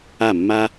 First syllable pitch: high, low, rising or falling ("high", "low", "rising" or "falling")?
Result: falling